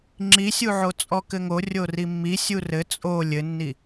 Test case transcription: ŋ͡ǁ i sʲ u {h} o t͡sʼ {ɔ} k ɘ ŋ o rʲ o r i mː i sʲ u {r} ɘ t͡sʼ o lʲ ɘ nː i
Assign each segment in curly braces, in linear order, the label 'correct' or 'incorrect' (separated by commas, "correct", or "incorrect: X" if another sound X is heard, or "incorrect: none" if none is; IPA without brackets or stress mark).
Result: incorrect: ʕ, correct, correct